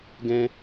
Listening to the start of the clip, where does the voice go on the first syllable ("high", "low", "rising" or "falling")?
high